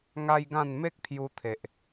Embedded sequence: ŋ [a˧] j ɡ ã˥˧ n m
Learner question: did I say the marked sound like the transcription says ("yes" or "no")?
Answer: no